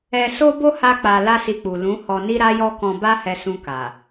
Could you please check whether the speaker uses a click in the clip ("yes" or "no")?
no